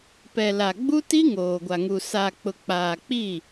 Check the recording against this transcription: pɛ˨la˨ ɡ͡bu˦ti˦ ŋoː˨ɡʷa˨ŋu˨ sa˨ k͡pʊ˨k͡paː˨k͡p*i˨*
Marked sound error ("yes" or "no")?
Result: yes